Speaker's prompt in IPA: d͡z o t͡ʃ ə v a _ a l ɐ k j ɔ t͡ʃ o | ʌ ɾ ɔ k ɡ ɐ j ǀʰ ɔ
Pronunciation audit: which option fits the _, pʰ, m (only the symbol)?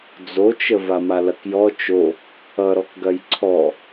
m